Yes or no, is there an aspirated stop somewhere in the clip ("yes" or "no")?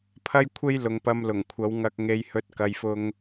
yes